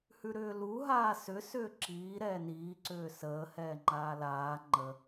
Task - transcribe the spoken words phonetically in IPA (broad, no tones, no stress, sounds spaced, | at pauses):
h ʉ ɾ ʏː l u ɦ aː s ʏ s ʏː ǁ iː ɾ ɛː n iː ǀ ʏː s əː h ɛː ŋ͡ǃ aː l aː ŋ͡ǃ ə